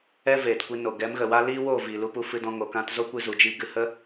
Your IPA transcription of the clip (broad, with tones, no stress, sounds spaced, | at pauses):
ɛ˦ v eː˨ t kʷ i˧ n o˨ ɡ ɛ˨˦ m ɣ ə˨ w a˦ l iː˦ w oː˦˨ v iː˨ l u˧ p u˧ f ɨ˧ d ɔ̃˧ ŋ o˨ k ã˧ t z o˦ kʷ ɨ˧ z u˨ d͡ʒ i˧ ɡ ɨ˧ h ə˦